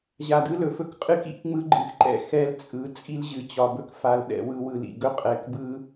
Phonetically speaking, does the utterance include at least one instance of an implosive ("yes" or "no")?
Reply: yes